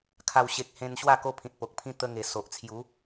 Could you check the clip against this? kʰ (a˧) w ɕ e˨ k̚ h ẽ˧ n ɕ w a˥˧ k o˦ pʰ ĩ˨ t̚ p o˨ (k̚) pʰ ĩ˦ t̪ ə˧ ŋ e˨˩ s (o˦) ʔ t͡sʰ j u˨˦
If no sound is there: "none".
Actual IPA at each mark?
a˨˩, k̚, o˨

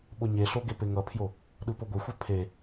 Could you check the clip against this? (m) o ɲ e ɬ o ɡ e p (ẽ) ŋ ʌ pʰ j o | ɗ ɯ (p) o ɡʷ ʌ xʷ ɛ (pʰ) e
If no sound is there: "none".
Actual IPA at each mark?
ɓ, e, p, pʰ

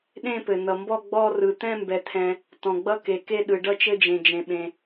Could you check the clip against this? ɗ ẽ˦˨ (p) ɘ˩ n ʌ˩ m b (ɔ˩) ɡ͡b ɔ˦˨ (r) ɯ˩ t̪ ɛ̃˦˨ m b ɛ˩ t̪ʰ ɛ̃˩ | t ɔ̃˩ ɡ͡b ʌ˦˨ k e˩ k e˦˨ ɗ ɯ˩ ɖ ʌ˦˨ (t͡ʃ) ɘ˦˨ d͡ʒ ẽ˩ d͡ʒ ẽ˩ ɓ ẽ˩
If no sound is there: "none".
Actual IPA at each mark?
p, ɔ˦˨, r, t͡ʃ

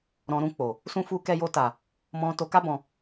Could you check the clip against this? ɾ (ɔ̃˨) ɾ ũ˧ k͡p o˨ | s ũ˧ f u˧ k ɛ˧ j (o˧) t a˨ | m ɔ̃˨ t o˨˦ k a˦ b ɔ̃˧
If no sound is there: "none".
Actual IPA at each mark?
ɔ̃˨, o˧

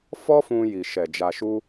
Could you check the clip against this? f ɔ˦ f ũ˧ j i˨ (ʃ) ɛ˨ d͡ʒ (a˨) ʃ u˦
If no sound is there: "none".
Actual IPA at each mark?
ʃ, a˧

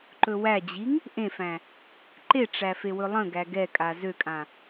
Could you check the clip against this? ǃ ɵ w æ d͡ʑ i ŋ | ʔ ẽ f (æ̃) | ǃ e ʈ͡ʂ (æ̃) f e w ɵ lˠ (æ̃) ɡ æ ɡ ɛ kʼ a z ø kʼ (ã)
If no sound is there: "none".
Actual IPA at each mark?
æ̃, æ, ə̃, ã

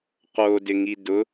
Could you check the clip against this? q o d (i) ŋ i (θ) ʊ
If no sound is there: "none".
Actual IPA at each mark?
ɪ, d

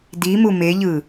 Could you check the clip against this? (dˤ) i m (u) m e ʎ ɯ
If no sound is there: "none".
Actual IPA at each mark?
d, u

